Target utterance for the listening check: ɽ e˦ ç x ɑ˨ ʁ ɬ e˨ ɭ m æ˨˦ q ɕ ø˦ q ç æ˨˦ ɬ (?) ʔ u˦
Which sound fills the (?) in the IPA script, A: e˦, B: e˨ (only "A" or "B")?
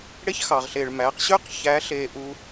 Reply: B